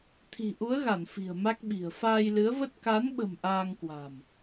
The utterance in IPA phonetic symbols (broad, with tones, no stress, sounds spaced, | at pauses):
t̪ʰ i̤˨˩ ʔ u˨˦ ə̯ ɣ a˧˩ n f i̤˨˩ ə̯ m a˦˥ k̚ ɓ i̤˨˩ ə̯ f aː˧ j l ɨ˨˦ ə̯ v ə˦˥ t̚ k a˨˦ n ɓ ə̤˨˩ m ʔ aː˧ ŋ k w a̤˨˩ m